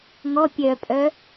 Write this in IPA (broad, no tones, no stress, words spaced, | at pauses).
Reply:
ŋɔ pʲœpʼœ